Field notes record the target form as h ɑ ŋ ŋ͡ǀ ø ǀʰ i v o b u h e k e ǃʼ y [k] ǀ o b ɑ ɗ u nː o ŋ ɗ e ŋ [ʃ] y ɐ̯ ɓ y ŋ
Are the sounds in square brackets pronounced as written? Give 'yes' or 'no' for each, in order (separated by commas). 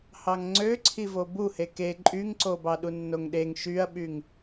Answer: no, yes